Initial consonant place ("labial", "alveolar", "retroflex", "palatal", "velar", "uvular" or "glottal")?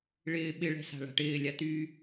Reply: retroflex